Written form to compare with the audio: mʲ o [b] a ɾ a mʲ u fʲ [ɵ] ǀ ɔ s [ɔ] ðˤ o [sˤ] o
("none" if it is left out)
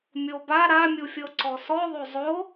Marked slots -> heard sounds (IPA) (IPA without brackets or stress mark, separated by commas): b, ɤ, ɔ, zˤ